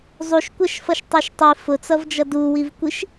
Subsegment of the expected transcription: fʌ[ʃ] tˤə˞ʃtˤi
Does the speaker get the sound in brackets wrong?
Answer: no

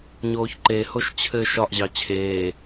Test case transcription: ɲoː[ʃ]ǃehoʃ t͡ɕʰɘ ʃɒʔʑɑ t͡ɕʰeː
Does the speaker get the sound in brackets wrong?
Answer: yes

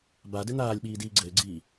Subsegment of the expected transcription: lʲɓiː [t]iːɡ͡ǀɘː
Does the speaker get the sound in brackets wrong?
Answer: yes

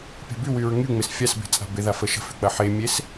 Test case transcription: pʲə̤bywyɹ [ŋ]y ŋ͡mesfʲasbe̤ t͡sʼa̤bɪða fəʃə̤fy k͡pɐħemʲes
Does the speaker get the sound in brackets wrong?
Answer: no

